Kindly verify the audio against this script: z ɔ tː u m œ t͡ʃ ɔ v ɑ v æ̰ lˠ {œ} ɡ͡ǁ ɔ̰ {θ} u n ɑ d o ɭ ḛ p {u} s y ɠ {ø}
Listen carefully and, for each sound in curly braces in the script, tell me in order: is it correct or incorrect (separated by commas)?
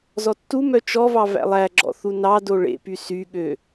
incorrect, correct, incorrect, correct